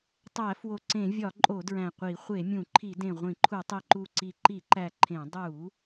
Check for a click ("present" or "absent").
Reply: present